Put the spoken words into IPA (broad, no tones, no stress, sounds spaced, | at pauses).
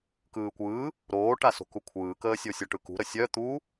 k ɯː kʷ ɯː | ɾ oː ʈ a s o̤ k u kʷʰ ɯː k əː sʲ o sʲ ɔ ʈ ɯ k ṳ ɾ ə sʲ œ t̪ u